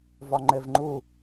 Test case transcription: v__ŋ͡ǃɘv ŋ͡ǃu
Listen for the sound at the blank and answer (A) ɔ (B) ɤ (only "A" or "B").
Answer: A